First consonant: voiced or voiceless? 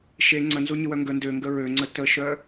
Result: voiceless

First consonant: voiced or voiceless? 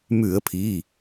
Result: voiced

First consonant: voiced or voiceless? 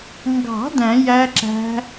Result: voiced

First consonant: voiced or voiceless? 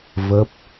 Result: voiced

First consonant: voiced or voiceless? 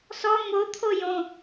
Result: voiceless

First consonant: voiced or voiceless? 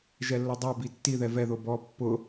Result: voiced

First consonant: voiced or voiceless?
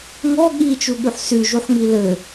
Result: voiced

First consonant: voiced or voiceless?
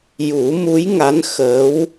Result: voiced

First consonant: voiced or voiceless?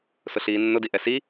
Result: voiceless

